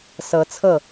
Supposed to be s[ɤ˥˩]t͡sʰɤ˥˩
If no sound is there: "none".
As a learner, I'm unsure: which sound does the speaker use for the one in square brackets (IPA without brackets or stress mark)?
ɤ˧˥